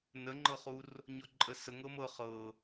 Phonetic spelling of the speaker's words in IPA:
n ə ŋ͡ǃ ɤ χ u r | ɲ ɔ ǃʼ ə s ə ŋ ɤ m ɤ χ ɤ

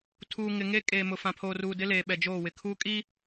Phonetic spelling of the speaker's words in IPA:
tʰ uː˨ ŋ ɪ˨ ŋ e˦ kʼ eː˨ m ʊ˨ f ã˨ pʰ oː˨ r uː˨ d ɪ˦ l eː˨ ɓ ɛ˨ d͡ʒ oː˦˨ w ɪ˨ kʰ uː˦ kʼ i˦

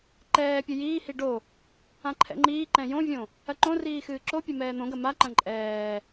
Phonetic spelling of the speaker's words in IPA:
ǃ ɛː pʲ ɨ j iː h i ɖ o | ã ǃʰ ɛ̰ ŋ͡ǃ iː ǃ ɛ̃ j õ vʲ õ | ɐ ǃ õ r iː x ɨː ǁ o pʲ ɘ m ɛː n̪ õ ɡ ɐ m a ǃ ɐ̃ ǃʼ ɛː

